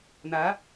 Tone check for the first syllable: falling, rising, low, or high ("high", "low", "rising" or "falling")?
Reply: rising